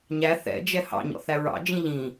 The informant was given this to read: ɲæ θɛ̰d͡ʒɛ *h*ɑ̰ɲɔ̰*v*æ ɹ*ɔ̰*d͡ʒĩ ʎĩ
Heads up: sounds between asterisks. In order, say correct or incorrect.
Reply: correct, incorrect: θ, incorrect: ɑ̰

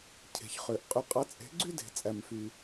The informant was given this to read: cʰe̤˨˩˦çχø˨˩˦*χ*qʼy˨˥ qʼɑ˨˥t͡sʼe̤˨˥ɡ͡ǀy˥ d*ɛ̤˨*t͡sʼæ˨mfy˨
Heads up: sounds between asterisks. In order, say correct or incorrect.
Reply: incorrect: ʔ, incorrect: e̤˨

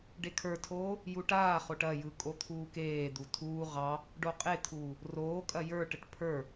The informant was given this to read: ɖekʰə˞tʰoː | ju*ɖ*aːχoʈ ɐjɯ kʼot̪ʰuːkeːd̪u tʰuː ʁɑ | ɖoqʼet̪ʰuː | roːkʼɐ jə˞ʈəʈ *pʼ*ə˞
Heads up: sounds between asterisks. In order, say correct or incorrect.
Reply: incorrect: ʈ, incorrect: pʰ

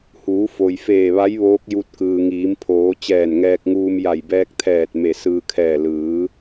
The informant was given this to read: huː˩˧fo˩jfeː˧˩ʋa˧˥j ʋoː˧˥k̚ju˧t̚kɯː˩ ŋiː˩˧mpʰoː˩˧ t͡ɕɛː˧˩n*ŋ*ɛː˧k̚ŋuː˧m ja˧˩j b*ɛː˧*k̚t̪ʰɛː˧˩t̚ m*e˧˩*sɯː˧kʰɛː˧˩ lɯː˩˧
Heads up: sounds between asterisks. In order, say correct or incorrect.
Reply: correct, correct, correct

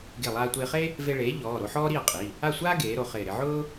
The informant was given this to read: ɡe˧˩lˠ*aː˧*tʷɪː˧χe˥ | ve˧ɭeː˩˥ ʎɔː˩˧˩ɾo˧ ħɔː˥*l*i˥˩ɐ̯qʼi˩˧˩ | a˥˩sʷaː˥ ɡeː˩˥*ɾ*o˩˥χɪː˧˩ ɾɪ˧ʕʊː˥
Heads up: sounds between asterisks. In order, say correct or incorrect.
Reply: correct, incorrect: ɾ, correct

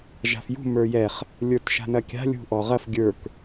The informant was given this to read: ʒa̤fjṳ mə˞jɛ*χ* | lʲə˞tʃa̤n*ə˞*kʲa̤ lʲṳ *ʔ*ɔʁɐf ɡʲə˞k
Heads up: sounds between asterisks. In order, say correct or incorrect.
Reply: correct, incorrect: ɐ, correct

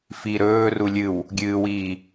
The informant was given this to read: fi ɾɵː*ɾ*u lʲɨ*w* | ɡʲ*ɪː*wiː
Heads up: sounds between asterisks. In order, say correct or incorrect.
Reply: incorrect: r, correct, incorrect: ɨː

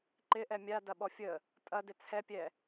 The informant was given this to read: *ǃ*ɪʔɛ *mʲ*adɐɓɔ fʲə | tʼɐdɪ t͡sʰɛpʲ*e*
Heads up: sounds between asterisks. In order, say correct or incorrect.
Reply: correct, correct, incorrect: ɛ

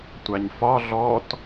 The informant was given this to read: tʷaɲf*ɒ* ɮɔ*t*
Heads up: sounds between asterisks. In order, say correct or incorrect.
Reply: correct, correct

